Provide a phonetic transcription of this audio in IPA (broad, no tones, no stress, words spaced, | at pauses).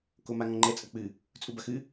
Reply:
komaŋɔ̃ŋ͡ǃɛ t͡sʼɐk͡pɨ | t͡sʼubɐxɨ